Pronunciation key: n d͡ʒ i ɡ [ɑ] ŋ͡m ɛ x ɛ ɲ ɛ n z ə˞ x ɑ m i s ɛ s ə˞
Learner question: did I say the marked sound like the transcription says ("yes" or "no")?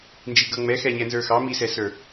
no